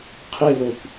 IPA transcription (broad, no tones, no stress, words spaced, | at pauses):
qʰe lokʷ